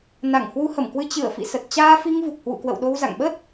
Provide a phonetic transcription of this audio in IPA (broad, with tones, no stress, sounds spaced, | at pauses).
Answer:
n a˧˩ ŋ h w u˨˦ h ə˧˩ m k w ɨ˧ t͡ɕ ɨ˧˩ ə̯ f ḭ˧˨ s ə˨˩ t̚ t͡ɕ aː˧ f i˧ ŋ v u˨˩ k̚ h w ṵ˧˨ k w ə̰˧˨ w ɗ o˧ w z a̰˧˨ ŋ ɓ ə˦˥ t̚